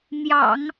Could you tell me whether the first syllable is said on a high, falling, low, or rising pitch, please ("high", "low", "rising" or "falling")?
low